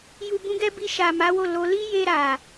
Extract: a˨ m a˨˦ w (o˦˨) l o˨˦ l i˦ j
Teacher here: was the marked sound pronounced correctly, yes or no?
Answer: yes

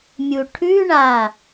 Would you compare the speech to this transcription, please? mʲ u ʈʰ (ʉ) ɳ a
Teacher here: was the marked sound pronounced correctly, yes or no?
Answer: yes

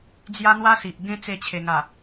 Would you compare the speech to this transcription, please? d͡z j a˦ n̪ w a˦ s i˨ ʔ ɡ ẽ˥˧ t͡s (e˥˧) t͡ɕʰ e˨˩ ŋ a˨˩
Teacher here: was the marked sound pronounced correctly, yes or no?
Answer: no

